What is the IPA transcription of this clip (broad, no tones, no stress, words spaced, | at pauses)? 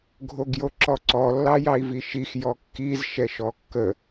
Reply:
ɡʱoɡjoǁɔǀɔ lːɑjɑi̯viʃix jɔkːiz ʃɛʃɔkːə